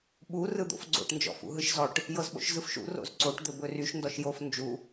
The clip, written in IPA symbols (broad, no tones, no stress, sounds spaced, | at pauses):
ɓ u r ɯ d̪ o̰ f ɡ͡ǀ o̰ ʈ n d͡ʒ ɔ̰ f ṵ ɦ ɯ ʃ z ɔ ʈ | j ɤ z ɓ o̰ ʃ z ɯ f ʃ ṵ r o̰ z ǀ o ʈ d̪ ɵ b ɵ r y ʃ n d ɔ ʃ j o f n d͡ʒ u